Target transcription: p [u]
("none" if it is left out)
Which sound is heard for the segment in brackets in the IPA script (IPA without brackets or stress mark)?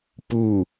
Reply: u